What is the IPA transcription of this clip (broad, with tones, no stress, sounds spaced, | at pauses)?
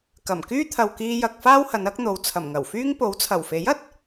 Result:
k ɐ˨˩ m k yː˥ t̪ʰ ɐ˨ w k iː˧ j ɐ˨ k̚ f aː˥ w h ɐ˨˧ n ɐ˨˥ k̚ n̪ o˨˧ w t͡sʰ ɐ˨˩ m ŋ ɐ˨˩ w f yː˥ ŋ p o˨˥ w t͡sʰ ɐ˨˩ w f e˨˥ j ɐ˨ t̚